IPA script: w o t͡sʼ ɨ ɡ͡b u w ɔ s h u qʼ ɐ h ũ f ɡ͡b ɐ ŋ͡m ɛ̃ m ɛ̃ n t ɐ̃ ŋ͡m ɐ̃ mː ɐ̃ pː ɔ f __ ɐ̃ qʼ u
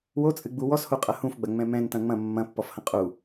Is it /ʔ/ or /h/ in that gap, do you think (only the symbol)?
h